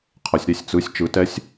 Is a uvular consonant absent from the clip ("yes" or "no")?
no